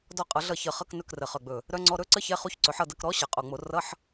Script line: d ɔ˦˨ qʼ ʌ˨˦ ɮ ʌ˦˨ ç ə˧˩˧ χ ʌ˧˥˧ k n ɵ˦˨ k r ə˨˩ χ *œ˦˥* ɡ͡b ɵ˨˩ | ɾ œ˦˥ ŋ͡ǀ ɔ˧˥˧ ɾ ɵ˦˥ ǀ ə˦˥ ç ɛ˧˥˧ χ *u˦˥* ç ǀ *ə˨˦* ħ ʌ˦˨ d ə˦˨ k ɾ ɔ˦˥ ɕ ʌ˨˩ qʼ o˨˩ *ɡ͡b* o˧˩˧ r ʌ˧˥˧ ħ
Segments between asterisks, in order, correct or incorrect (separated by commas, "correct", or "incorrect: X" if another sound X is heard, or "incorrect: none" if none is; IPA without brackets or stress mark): incorrect: œ˨˩, correct, incorrect: ɵ˨˦, incorrect: ŋ͡m